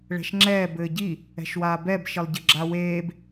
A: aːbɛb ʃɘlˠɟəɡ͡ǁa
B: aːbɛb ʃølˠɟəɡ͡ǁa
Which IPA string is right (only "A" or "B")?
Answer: A